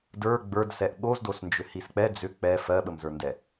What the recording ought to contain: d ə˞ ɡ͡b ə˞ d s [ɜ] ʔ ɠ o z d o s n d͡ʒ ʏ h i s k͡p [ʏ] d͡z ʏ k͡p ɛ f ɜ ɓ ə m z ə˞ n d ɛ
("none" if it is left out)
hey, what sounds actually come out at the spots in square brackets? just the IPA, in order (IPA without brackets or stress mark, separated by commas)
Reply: ɛ, ɛ